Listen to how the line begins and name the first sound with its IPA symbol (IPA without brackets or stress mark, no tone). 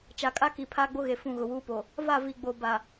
t͡ʃ